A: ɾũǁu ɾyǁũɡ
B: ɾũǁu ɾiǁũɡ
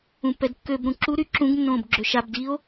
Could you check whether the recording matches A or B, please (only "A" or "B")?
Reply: A